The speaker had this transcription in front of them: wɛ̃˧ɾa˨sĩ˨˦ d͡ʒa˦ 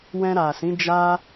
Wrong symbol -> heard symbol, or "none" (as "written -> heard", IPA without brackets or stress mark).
none